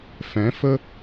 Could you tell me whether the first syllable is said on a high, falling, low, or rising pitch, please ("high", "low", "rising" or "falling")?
rising